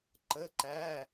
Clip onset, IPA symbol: ǃ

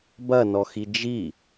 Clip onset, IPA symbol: b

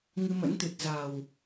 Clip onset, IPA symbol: ŋ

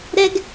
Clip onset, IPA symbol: ɾ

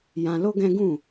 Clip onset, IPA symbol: j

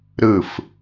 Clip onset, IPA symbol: ɾ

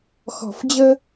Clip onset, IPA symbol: x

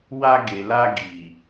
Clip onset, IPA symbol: w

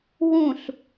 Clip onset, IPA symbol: w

